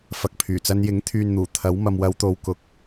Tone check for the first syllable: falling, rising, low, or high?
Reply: low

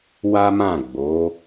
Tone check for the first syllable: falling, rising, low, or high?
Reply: high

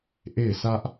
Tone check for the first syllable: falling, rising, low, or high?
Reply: falling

